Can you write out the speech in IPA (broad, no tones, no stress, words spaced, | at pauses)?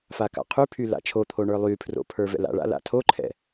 faka̰qʰypʰy la̰t͡ʃʰot̪ʰo ɳə˞lˠypʰro̰ pʰə˞vɛ̰la̰ɭa̰ la̰tʰoǃʰɛ̰